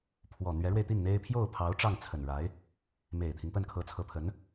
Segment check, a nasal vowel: absent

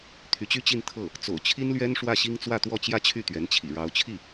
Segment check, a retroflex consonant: present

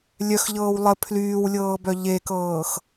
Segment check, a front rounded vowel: present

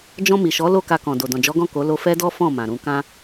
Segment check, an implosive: absent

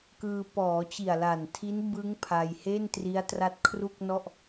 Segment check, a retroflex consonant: absent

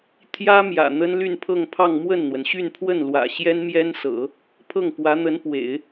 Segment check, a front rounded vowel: present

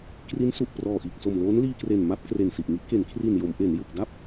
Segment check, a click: absent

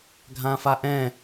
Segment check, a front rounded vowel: absent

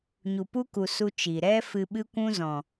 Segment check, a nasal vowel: present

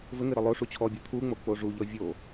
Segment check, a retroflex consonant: present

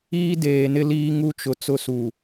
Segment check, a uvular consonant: absent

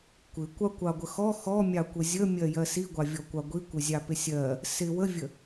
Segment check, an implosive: absent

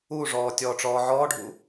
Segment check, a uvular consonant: absent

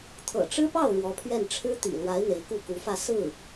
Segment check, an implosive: absent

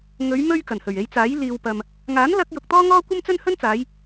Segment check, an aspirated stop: absent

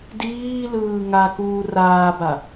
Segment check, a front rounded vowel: absent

